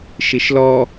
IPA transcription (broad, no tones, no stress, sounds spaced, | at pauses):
ʃ i ʃ l ɔ